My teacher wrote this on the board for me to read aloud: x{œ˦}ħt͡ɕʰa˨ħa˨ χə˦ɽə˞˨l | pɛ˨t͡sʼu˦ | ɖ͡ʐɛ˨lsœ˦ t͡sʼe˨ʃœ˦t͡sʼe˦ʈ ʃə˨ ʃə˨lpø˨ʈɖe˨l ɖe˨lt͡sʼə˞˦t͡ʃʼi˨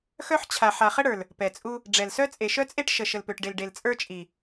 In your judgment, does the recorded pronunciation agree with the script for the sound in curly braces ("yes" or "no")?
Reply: yes